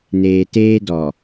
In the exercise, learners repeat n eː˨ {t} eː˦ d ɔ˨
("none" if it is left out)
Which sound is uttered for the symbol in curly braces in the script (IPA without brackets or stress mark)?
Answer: t